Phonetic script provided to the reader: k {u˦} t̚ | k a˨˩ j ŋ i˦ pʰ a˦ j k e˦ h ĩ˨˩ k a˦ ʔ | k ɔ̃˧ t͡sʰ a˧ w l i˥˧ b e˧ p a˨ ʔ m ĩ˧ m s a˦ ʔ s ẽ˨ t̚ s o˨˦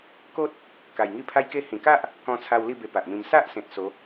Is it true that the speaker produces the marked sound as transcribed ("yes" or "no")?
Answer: no